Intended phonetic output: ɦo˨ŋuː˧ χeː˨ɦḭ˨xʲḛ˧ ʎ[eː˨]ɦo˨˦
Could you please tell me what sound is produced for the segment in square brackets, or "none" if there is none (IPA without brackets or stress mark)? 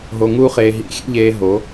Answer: eː˧